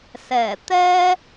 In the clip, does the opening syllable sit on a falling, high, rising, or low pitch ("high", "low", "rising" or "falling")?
low